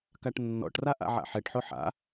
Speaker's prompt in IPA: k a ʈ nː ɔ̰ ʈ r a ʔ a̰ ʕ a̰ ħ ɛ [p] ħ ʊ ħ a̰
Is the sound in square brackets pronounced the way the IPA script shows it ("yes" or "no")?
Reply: no